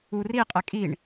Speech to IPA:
uri qʼɛkʼiɳ

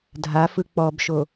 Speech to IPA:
dʱafɯ k͡pɔbʃo

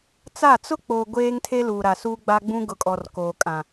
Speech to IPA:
t͡sa˦˨ t͡sʊ˦k͡po˨ ɡʷeː˦ŋtʰe˦ luː˨ɾa˨ suː˦ɡ͡ba˦ɡ͡bũ˦ɡʊ˨ kʼɔ˨rkoː˨kʼã˨

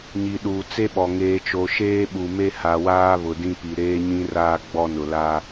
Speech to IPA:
ɲi˨ɗuː˨ t͡se˦ɓɔ˨ ŋeː˨t͡ʃo˨ ʃeː˦ɓu˨me˦ ha˨waː˦ βʊ˨dĩ˦pi˨ ɾeː˦ɲĩ˦raː˦ ɡ͡bɔ˦nʊ˨la˦

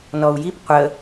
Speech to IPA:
nɔu̯jip qʷə

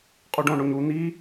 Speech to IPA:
qʼuɖõɳoɲ u n̪i

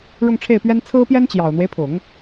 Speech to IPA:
ɻʊ˥˧ŋʈ͡ʂʰe˥˩ɪ̯pɥɛ˥n t͡sʰɹ̩˥pjɛ˥n t͡ɕjɑ˨˩ʊ̯n̪we˦ɪ̯pʰʊ˨˩˦ŋ

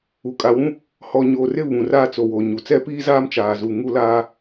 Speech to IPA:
u˨ kʼa˨wũ˦ | hɔ˨ ɲo˨rɪ˦˨ βũ˨raː˦t͡so˨ wo˨ɲu˨ t͡sɛ˦piː˦zaː˦m t͡ʃaː˨zu˨ ŋu˦laː˦

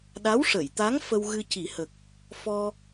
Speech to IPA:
ɗa˧˥wʂə˨˩˨jt̪a˧˥ŋ fə˧wɣɨ˧ci˨˩˦hə˨˩k̚ | fɔ˧

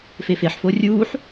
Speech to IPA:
fefeħfo rʲuːħ

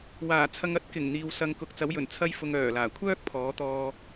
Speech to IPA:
waː˨˩t͡sʰɐ˧ŋ ɐ˥t̚kɪ˨˩ŋ n̪iː˨wsɐ˨˧ŋkʊ˨k̚ t͡sɐ˨˥wjɵ˨˩n t͡sʰɐ˥jfʊ˧ŋ œː˨˩laː˨˩ kʷʰœː˥k̚pʰɔː˨˥t̪ɔː˧

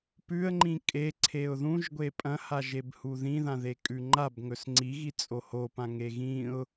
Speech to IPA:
pʉə̯ŋ͡ǃĩ kʼeǀʰeʊ̯ ðũʒɡʷe pʼɐ̃haʒebhu ðĩðãðekʼʉ ŋ͡ǃabŋɵs ŋ͡ǀiɣit͡sʼo hopãŋe ɣĩʊ̯

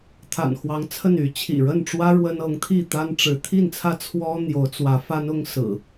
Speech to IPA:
t̪ʰa̰˨˩nxwɑ˨˦ŋt͡sʰə˥˨ny˨˦ t͡ɕʰḭ˨˩ɻə˥˨nʈ͡ʂwä˦ ɻwə˦n ɤ˨˦ŋt̪ʰi˥˨t̪a˦n ʈ͡ʂɻ̩˨˦ t̪ʰi˥˨nt͡sʰä˥˨ t͡sʰwɔ˦ n̪jo˨˦ʊ̯t͡swä˨˦fa˦nʊ˦ŋ sɹ̩˨˩

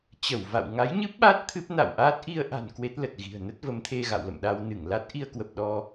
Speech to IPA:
t͡ɕə˧˩wva̰˧˨w ŋa˨˦jɲɨ˦˥p̚ɓa˦˥t̚ t̪ʰɨ˦˥p̚ na̰˧˨wʔaː˦˥t̚ ʔi˧ə̯ʔa̤˨˩n kwe˦˥t̚lə˨˩t̚ɣi̤˨˩ə̯ nə˦˥t̚və˨˦mt̪ʰe˧ɣa̰˧˨w lə̰˧˨mɗa˧wnɨ˧˩ŋla˦˥t̚ ʔi˧ə̯kwə˨˩p̚ ɗɔ˧

